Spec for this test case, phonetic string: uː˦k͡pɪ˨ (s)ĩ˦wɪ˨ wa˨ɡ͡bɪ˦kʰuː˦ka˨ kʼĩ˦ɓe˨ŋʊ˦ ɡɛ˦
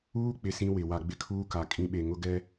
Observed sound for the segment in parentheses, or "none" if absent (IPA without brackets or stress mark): s